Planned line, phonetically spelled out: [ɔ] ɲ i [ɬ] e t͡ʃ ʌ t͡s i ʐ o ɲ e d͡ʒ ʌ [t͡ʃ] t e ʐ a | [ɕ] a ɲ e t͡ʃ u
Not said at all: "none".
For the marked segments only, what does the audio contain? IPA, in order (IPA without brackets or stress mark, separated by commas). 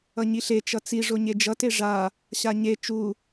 ʌ, ɬ, none, ɕ